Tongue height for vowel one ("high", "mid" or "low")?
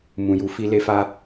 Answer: high